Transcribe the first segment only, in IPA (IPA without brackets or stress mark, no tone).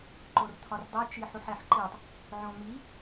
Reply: ǃ